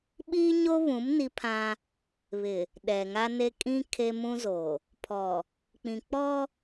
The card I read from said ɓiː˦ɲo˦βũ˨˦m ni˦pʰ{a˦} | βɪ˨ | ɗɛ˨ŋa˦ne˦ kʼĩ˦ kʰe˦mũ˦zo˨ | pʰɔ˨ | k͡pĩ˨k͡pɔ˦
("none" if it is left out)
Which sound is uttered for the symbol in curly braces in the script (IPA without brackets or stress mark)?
ã˦